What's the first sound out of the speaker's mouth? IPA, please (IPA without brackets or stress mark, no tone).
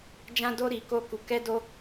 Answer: d͡ʒ